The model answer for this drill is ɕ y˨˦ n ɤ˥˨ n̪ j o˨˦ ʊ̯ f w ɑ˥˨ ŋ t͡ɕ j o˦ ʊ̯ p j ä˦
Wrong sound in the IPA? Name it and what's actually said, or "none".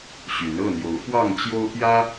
none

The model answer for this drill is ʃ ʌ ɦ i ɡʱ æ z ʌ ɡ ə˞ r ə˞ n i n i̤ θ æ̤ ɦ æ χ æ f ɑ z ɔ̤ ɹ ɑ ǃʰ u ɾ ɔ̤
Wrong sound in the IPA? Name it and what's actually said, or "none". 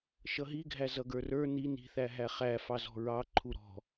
æ̤ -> æ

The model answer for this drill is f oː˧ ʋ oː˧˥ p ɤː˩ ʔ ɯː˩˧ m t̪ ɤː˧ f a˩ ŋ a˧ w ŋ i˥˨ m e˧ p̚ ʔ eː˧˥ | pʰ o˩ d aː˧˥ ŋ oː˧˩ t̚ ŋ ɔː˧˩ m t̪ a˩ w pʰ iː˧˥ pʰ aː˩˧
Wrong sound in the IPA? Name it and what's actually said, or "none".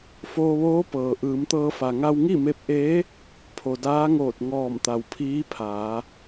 none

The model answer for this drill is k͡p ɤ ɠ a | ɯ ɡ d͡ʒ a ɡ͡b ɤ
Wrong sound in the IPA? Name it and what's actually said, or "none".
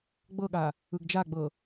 k͡p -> ɡ͡b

